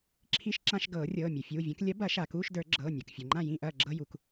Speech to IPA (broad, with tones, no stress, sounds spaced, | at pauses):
ǁʰ i˧˥˧ ʃ ǁ ã˧˥˧ ʃ ɡ ɤː˨˩˦ rʲ ɤː˩˧˩ mʲ u˩ fʲ uː˩˧˩ vʲ ɐ̃˨˥ k lʲ ɐ˨˥ b ɐ˨˩˦ ʃ a˩ k uː˧˥˧ ʃ d ə˞˨˩˦ ɡ͡ǁ ɤː˩˧˩ nʲ ɤ˩ k fʲ ɤ˩ ŋ͡ǃ ã˥˩ j ĩ˥˩ ʔ ɐː˥˩ ɡ͡ǁ ɤ˧˥˧ j u˩ k